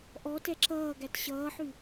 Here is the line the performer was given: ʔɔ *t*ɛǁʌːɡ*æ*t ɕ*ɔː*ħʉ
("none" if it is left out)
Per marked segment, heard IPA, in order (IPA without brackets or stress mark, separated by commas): t, æ, ʌː